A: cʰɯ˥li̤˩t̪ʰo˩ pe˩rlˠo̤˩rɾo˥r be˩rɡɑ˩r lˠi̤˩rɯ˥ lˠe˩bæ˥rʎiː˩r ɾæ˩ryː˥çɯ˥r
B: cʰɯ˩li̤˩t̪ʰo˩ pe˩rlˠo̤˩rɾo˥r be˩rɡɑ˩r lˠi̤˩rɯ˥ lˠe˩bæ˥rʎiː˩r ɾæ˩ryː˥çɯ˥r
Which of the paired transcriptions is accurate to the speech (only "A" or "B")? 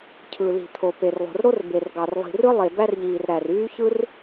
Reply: B